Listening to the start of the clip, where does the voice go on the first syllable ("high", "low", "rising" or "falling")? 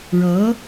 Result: rising